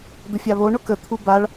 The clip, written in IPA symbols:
d̪ ə fʲ a β o ɳ ʊ k ə t̪ʰ u b a ɭ

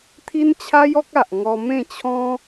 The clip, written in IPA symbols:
t̪ʰ i˦ n t͡ɕʰ a˦ j ɔ˦ k̚ a˨ ʔ ŋ ɔ˧ m ẽ˥˧ t͡ɕʰ ɔ̃˦

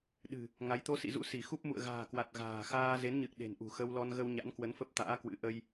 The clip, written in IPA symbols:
ɗ ɨ̤˨˩ | ŋ a˨˦ j t̪ o˨˦ s ḭ˧˨ z ṵ˧˥ s i˧˩ x u˦˥ p̚ m ṵ˧˨ ə̯ ɣ a̤ː˨˩ k w a˨˩ t̚ ɣ a̤ː˨˩ x aː˧ z e˨˦ n ɲ ɨ˨˩ k̚ ɗ e̤˨˩ n ʔ ṳ˨˩ x ə˧ w l ɔ˧ n ɣ ə˧ w ɲ a̰˧˥ n k w ə˨˦ n f ə˦˥ p̚ t̪ a̰ː˧˥ k w ɨ̰˧˥ ʔ ə˧ j

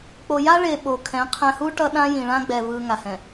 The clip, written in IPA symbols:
k͡p o˨ j a˦ ɭ e˨ ɓ o˨ kʰ ɛ̃˨˦ qʰ ɛ̃˨ h u˦ ʈ ʌ˦ ɗ ã˦ j ĩ˨ ɭ ã˦ ɡ͡b ɛ˨ v ɯ˨ ŋ a˨ h ɛ̃˨

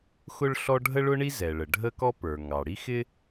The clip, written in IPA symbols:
x ʊ˥ ɭ ɬ ɔ˥ ɖʱ ə˥ ɭ ʊ˥ ɳ i˥ z ɛ˩ ɭ ə˩ ɖʱ ə˥ k ɔ˥ p ə˞˩ ŋ ɑ˩ ɽ i˥ x ɪ˥

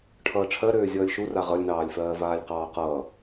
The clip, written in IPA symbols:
ʈʰ ʌː ʈ͡ʂʰ ɜ ɾ øː zʲ ʌː lʲ ʃ u r a ʁ ʌ lʲ n ɑː lʲ f ɜː v aː lʲ q ɑː q ʌː

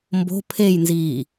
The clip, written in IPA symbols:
m b o̤ pʰ e j n z iː

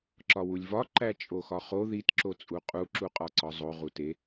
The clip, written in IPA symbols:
ǁ ɒ w u lʲ v ɒ ǃ æ t͡ʃʼ o x ɒ χ o ð i t ǁ o t͡sʼ u qʼ u ǁ u qʼ ɒ ǀ ɒ zˤ o ʁ u t e

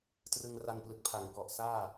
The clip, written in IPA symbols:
t r ɯ˧ ŋ r a˧ n p l ɯ˨˩ k̚ pʰ a˩˦ ŋ k ɔ˨˩ ʔ s aː˥˩

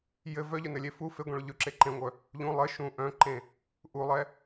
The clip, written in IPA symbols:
j ɘ v œ ʎ œ n ɘ lʲ e f u f e ɡʷ ẽ ɭ ɵ ʎ ɵ ǁ e ǃ ẽ ŋʷ œ | ʎ ũ lˠ ɘ ʃ ũ ʔ œ̃ ǃ ẽ | ʔ u lˠ ɛ

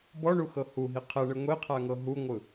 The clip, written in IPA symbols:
b ɔ ɳ u x ɤ h u ɦ i qʰ ɛ ɳ ɯ ŋʷ e qʰ a ŋ ɤ ɦ u ŋʷ ɯ

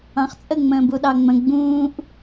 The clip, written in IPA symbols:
ɑ̃ χ t͡sʼ ə ŋ͡m ə̃ː b u ɗ ɑ ŋ͡m ə̃ ɡ͡b ũː ʔ

